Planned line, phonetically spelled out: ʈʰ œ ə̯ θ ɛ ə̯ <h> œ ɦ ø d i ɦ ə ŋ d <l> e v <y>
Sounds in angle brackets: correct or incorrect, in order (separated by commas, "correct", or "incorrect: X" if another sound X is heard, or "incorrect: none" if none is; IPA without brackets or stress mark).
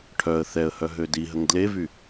correct, correct, correct